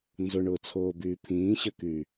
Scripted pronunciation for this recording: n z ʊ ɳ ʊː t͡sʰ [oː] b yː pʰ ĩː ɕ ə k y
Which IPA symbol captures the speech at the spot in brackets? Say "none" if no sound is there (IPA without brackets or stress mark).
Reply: oː